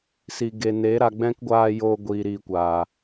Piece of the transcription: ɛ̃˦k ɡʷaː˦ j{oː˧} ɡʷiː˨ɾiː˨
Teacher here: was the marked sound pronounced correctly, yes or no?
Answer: yes